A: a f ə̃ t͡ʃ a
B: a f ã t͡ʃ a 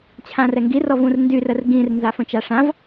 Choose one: A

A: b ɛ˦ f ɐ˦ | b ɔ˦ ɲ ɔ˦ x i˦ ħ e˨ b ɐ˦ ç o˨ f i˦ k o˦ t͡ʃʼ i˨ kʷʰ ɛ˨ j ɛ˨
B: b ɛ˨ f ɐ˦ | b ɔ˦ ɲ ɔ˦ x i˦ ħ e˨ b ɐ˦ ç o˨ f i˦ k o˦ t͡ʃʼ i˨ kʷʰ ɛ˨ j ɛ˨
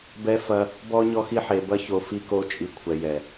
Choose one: A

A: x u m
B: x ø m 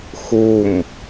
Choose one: A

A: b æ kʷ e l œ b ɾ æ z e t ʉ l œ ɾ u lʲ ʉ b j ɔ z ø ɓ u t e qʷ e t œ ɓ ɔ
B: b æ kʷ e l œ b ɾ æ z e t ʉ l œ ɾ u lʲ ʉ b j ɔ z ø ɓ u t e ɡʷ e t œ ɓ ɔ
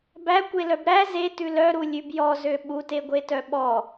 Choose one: B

